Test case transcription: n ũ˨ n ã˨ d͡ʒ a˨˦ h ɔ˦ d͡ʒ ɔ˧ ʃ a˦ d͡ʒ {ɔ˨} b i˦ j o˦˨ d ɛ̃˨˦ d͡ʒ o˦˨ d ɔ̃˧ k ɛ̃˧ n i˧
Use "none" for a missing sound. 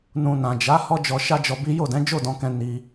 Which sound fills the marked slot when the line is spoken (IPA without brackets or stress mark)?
ɔ˧